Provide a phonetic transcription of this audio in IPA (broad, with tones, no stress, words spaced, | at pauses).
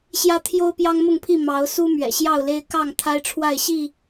ɕjä˦t̪ʰjo˦ʊ̯ pjɑ˦ŋmʊ˥˨ŋpʰi˥˨ mɑ˨˦ʊ̯su˦ mɥɛ̰˨˩ ɕjɑ˥˨ʊ̯le˦ɪ̯ kɑ˥˨ŋ t̪ʰa˦ɪ̯ʈ͡ʂʰwa˥˨ɪ̯ ɕi˥˨